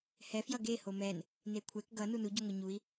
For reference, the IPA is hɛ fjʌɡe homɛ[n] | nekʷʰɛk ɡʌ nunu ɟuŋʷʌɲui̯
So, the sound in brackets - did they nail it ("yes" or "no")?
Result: yes